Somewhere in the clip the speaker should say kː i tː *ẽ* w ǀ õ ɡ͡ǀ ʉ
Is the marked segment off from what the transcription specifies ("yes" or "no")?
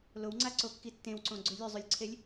no